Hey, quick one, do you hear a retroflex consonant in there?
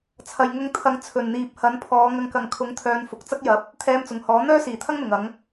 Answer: no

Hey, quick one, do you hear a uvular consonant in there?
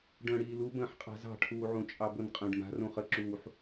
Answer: yes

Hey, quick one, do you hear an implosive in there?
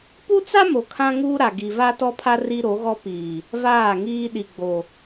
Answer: yes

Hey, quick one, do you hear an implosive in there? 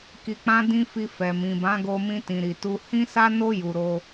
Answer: no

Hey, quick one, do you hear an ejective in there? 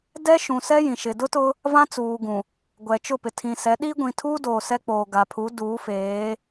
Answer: no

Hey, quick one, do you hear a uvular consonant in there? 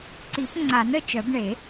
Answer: no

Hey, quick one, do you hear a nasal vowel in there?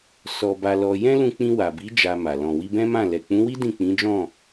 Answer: yes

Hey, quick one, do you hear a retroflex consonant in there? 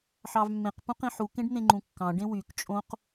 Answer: yes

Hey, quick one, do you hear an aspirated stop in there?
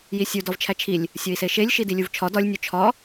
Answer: yes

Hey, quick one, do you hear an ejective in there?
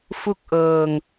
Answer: no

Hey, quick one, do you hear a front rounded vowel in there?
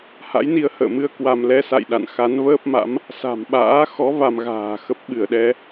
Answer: no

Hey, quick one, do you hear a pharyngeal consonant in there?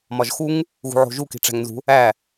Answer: yes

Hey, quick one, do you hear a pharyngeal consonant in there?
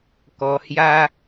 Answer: no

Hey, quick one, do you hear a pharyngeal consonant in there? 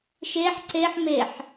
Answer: yes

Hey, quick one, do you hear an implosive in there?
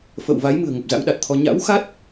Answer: yes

